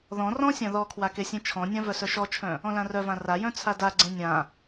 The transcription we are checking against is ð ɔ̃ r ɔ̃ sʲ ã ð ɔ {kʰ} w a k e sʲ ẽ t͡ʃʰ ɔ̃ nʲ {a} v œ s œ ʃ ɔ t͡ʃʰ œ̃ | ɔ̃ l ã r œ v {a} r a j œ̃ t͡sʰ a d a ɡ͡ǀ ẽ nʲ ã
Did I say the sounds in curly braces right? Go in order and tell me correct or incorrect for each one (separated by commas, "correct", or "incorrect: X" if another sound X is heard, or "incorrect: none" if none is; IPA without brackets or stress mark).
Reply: correct, incorrect: ã, incorrect: ã